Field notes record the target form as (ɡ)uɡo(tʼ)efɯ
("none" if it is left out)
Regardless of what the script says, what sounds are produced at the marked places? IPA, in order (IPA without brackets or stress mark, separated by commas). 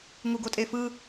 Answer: ŋ, tʼ